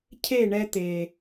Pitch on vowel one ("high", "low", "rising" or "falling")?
falling